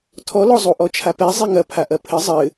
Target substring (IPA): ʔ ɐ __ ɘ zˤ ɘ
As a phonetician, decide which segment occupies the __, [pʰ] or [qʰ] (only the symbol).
pʰ